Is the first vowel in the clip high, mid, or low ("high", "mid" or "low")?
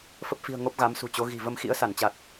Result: mid